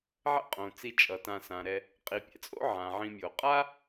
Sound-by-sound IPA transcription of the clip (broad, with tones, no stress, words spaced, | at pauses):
ʕɛ̰˥qʼõ˩ t͡si˨ t͡ʃʼʌ˩tã˨ sã˩ɾɛ˨ | qʼi˩pʲɛ̰˩t͡sʼo̰˦ʕã˩ ʕĩ˨mʲo˩qʼa˥